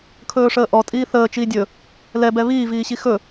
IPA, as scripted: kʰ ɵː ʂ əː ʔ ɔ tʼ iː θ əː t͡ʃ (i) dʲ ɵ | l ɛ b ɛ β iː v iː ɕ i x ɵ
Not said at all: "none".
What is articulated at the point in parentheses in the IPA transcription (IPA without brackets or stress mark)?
iː